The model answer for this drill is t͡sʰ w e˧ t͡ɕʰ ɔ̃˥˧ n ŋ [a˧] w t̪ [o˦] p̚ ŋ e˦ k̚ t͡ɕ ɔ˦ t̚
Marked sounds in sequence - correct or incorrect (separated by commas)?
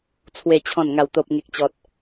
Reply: incorrect, correct